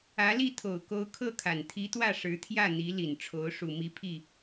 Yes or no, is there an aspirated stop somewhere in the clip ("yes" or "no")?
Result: yes